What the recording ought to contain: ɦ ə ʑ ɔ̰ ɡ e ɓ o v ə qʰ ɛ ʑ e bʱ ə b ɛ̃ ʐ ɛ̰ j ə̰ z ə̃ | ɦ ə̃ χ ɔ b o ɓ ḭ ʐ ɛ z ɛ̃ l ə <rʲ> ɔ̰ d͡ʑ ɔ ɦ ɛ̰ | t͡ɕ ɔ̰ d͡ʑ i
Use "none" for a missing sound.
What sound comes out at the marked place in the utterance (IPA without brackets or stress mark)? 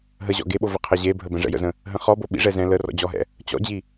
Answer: r